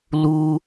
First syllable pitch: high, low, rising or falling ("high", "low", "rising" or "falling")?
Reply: high